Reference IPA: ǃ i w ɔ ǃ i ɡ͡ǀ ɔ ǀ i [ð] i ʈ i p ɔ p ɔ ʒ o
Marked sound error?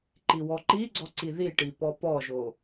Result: no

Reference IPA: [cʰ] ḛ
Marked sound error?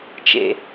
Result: yes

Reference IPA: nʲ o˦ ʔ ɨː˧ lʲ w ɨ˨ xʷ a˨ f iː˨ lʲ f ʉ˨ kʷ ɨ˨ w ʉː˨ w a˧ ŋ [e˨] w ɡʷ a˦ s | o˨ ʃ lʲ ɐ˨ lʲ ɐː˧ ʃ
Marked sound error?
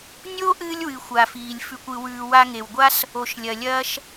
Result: no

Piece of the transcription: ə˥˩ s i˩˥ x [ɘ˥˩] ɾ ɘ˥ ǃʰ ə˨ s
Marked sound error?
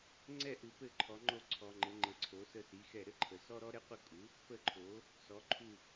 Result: yes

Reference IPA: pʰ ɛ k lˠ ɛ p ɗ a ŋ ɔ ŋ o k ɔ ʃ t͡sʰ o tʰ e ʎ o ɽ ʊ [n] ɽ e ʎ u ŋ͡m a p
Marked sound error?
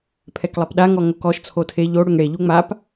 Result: yes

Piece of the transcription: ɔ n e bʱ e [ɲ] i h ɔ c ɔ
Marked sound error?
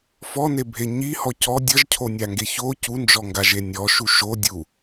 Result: no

